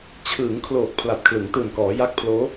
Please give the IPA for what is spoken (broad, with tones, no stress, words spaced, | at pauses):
t͡ɕʰɯː˩˦ŋ kʰloː˨˩k̚ pʰla˨˩t̚kʰlɯ˩˦ŋtɯː˨˩nkɔː˩˦ ja˦˥k̚pʰloː˦˥